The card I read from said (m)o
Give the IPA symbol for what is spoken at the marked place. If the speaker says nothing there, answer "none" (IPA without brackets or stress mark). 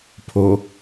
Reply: pʰ